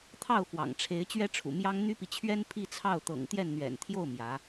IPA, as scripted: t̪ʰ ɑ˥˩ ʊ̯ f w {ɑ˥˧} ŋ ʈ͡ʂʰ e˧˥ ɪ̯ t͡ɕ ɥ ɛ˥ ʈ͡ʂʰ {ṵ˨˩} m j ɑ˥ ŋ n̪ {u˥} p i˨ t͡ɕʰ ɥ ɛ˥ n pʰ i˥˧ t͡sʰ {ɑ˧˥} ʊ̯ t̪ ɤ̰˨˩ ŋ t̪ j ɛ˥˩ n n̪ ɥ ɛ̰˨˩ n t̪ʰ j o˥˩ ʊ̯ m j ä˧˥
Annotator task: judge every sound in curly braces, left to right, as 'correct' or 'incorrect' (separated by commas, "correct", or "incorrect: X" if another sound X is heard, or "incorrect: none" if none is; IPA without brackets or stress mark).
incorrect: ɑ̰˨˩, correct, incorrect: y˥, incorrect: ɑ˥˩